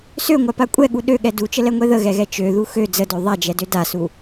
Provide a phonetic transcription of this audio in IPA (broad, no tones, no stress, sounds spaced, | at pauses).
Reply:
s ø ŋʷ a p a kʷʼ ɛ ɠ u ɗ ø ɠ ɛ d u t͡ʃ ə l ɛ ŋʷ ɛ ð ə ɣ ɛ ɣ ɛ t͡ʃ ø ð u x ø d͡z ə d ø ðˤ a d͡ʒ ɛ d ø d a s u